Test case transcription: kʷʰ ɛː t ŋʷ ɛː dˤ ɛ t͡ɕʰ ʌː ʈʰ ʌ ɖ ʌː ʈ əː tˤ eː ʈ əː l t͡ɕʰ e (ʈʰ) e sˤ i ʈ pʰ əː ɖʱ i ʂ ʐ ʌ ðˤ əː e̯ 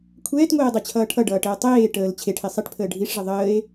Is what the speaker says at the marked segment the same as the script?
yes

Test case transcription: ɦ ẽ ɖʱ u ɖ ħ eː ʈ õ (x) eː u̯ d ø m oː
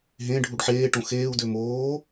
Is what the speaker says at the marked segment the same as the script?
yes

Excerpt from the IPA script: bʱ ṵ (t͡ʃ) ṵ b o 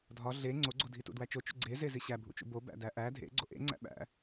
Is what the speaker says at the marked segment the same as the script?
yes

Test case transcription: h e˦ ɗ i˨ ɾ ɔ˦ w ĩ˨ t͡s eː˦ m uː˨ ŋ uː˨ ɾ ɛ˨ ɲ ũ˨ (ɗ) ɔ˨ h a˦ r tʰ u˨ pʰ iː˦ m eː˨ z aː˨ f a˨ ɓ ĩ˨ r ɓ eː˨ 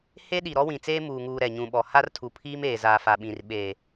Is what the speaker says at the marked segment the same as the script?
no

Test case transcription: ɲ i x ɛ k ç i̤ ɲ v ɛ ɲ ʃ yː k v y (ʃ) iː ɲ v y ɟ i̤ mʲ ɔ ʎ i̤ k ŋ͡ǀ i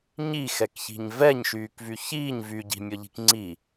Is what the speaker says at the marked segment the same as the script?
no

